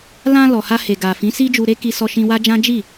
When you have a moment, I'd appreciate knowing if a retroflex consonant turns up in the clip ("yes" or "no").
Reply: no